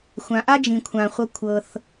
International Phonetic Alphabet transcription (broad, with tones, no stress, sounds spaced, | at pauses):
xʷ ã˩ ʔ a˥ d͡ʒ ĩ˩ kʷʰ ã˩ χʷ ʌ˧ kʷʰ ɤ˩ θ